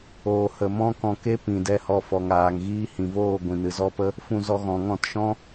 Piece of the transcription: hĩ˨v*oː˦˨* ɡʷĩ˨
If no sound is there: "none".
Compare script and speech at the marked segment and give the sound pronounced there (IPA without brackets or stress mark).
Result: oː˦˨